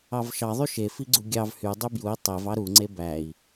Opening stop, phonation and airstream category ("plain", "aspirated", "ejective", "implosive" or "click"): click